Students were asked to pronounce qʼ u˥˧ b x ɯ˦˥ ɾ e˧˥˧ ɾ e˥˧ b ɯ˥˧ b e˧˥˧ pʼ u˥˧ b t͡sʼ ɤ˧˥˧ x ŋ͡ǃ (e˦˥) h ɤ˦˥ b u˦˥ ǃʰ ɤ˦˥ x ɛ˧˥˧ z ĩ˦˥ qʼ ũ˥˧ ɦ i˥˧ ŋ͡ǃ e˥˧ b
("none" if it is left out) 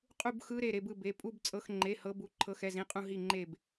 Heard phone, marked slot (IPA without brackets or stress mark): e˧˥˧